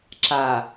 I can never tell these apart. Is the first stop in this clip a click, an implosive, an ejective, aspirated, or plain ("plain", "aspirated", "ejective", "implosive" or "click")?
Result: click